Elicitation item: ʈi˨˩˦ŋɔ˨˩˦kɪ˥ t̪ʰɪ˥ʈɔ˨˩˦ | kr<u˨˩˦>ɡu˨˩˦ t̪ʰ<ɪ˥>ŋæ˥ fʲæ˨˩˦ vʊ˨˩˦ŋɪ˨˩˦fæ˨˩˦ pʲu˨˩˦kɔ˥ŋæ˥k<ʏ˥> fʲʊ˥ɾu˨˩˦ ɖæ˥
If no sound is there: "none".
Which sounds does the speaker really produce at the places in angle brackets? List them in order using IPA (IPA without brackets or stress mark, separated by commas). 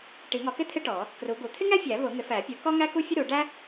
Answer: u˨˩˦, ɪ˥, u˥